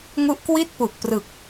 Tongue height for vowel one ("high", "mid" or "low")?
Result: high